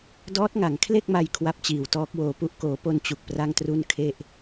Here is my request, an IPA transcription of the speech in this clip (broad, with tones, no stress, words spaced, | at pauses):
dɔː˦˥t̚ŋa˩˦ŋkʰle˥˩k̚ma˧j kʰwa˦˥p̚t͡ɕiː˨˩wtɔː˦˥k̚woː˧ pu˦˥ʔkoː˩˦po˧n t͡ɕu˨˩k̚pra˥˩ŋtru˥˩nkʰe˥˩ʔ